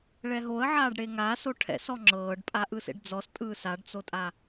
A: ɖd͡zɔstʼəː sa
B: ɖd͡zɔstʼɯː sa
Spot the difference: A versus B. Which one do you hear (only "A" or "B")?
B